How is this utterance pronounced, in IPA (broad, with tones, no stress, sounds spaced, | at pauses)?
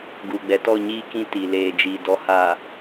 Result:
ɡ uː˨ ɡ͡b ɛ˨ t ɔ˦˨ ɲ iː˦ k ĩ˦ t i˨ l eː˨ d͡ʒ i˨ d ɔ˦ h aː˨